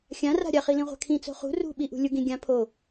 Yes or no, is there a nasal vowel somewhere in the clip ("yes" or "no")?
yes